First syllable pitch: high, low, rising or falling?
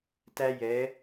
high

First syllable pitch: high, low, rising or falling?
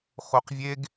low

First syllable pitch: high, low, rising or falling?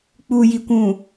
low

